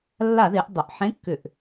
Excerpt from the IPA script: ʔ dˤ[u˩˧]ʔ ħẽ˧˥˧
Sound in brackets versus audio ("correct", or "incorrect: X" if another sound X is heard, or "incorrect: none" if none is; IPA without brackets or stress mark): incorrect: ʏ˩˧